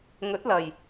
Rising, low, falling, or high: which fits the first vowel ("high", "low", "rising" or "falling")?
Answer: rising